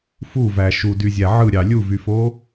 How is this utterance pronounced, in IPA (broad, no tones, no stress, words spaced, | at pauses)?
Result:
fuvæ ʃudyzʲæ ʕɯɾʲɑ lʲuvyfo